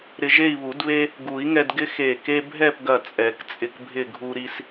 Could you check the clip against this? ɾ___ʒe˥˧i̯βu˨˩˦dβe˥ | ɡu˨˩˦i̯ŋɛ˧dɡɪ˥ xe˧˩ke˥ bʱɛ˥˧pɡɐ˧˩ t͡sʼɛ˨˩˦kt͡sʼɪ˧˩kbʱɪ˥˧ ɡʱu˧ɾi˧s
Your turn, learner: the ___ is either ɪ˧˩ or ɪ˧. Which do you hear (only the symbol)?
ɪ˧